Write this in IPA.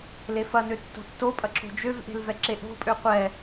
lefɐnø tːo̤tːopʼɐ ǁo̤d͡ʒøvʔe̤l vɛǁeʔo̤pʼø qʷɛ

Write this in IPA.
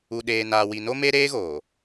u˨ɗeː˨naː˨ wi˨no˦ me˦ɾeː˦ɣoː˨

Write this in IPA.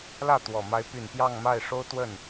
lä˥˩t̪wɔ˨˩ ma˧˥ɪ̯py˨˩n pjɑ˥˧ŋma˥˩ɪ̯ʂo˥ʊ̯ t̪wə˥˩n

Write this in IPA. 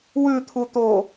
wʉt̪ʰut̪o

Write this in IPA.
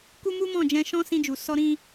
ku˦mu˦mɔ̃˦˨d͡ʒɛ̃˧ ʃɔ̃˦ sĩ˧d͡ʒu˨ sɔ˧ɾĩ˧

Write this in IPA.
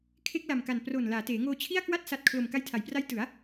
kʰe˦˥k̚la˨˩mka˨˩n pro˨˩n laː˩˦teː˩˦ŋoː˧ t͡ɕʰi˥˩a̯kwa˥˩t̚ sa˨˩t̚ kʰlo˨˩m ka˧jtʰa˨˩jpra˦˥j tɯ˩˦a̯

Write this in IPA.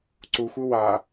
ǀuxʷɯ wa

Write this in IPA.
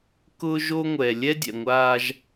kʊː˦ ʒo˦ŋʷɛː˨ lʲɛ˦ dʲɛ̰˨ŋʷaː˦ʒ

